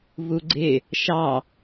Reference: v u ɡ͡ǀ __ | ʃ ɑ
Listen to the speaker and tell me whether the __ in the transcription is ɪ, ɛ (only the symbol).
ɪ